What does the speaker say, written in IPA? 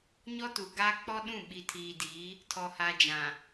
ɲ ɔ˦ t u˨ ɡ aː˦ k͡p ɔ˦ ɗ ũ˦˨ ɓ i˨ tʰ iː˨ d iː˨˦ | tʰ ɔ˨ h a˨ d͡ʒ ã˨

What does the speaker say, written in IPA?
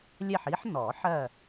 lʲ ɛ˥˨ ħ i˦˥ ħ n ɔ˨˩˦ ħ ɜ˥˨

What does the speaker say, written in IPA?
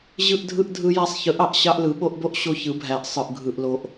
ʑ ɯ˦ ʔ dʱ ɯ˦ ʔ dʱ ɯ˦ j æ˦ sˤ ç ɯ˨˦ ʔ ɑ˨ ʔ ɕ ɑ˦ ʔ l ɯ˨˦ ɓ o˦ ʔ b o˦ ʔ ɕ o˦ ç ɯ˨˦ bʱ æ˨ ʔ sˤ ɯ˨ ʔ ɡʱ ɯ˨ ʔ l o˨ ʔ

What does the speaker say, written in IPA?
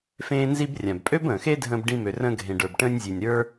f ẽː˧ n z i˧ b rʲ ã˨ b pʼ ø˦ b ə̃ː˨ x e˦ dʱ ə̃ː˧ b ɖ ĩ˧ m ø˨ r ə̃ː˧ ɡʱ ẽ˨ ɖ ə˞˨ b ʈ ə̃ː˧ nʲ zʲ e˨ nʲ ɾ ə˞˦

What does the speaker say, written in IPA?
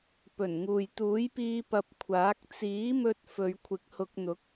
p ɵ˨˩ n ŋ uː˨ j t̪ uː˨˥ j p iː˧ p ɐ˨ p̚ kʷʰ aː˨˥ k̚ t͡s iː˨˥ m ɵ˧ t̚ f ɵ˨˧ ɥ kʷʰ ɪ˨˥ k̚ h ʊ˧ k̚ n̪ ʊ˨˥ k̚

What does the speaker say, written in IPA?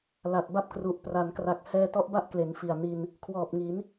l a˨˩ t̚ b a˥˩ p̚ k r u˨˩ ʔ p r a˩˦ n k r a˨˩ k̚ h ɛː˧ t ɔ˦˥ ʔ b a˥˩ ʔ k l e˩˦ n f i˨˩ a̯ n i˧ n | kʰ w ɔː˨˩ p̚ ŋ i˩˦ n

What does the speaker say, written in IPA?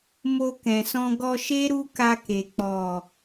m o˧ k ɛ̃˨ s ɔ̃˧ ɡ ɔ˧ ʃ e˦ ɾ u˦ k a˧ k e˨ k͡p ɔ˨

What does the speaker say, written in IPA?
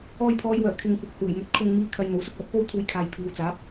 ɔː˧ j pʰ ɔː˨˧ j w œː˨˩ kʰ ɪ˨ ŋ kʷ ɐ˨ k̚ h uː˨˩ j m ɵ˨ t̚ kʰ ʊ˧ ŋ m iː˧ kʰ ɐ˨ j n̪ o˨˥ w s ʊ˥ k̚ l ɐ˨˥ p̚ k o˥ w t̪ʰ uː˧ j kʰ aː˨ j pʰ iː˨ w t͡s aː˨˥ p̚

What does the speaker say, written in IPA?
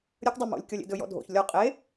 ɾʲ ə k dˤ ɵ m o̰ lʲ kʲ ɔ lʲ ḛ d ɵ j ɔ̰ dʱ o̰ ç lʲ ɔ qʼ e

